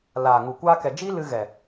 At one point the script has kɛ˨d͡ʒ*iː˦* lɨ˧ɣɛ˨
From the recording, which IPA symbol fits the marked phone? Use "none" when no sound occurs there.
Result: iː˦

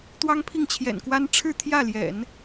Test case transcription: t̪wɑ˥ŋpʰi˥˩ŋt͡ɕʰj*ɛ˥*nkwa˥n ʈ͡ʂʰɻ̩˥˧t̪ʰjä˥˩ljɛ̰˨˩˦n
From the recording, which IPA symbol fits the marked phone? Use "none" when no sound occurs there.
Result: ɛ̰˨˩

